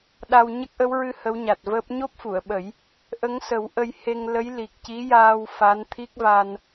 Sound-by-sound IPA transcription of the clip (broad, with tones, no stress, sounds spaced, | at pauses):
ɗ a˧ w ɲ ə˦˥ k̚ ʔ ə˧˥ w ɹ ɨ˧ h ə˧˥ w ɲ a˨˩ t̚ v əː˦˥ p̚ ɲ o˦˥ p̚ f u˨˩˨ ə̯ ɓ ə˨˩˦ j | ʔ ə˧˥ ŋ s ə˨˩˦ w ʔ ə˧ j h e˧ ŋ l ə˧˥ j l i˨˩ k̚ c i˧˥ j aː˧ w f a˧˥ n t̪ʰ i˦˥ k̚ v a˧ n